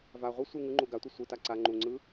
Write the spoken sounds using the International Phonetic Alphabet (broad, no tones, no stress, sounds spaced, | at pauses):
v a ʁʷ ɯ sʷ ɯ ŋ ɯ ŋ͡ǃ u ɡ a tʷ i sʷ ɯ t a ǀ a ŋ͡ǃ u ŋ͡ǀ ɯ